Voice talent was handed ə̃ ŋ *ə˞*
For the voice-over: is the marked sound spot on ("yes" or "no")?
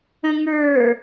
yes